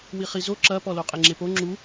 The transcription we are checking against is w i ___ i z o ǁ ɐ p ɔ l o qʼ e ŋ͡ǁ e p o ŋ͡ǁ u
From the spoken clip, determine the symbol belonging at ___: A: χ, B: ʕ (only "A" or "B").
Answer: A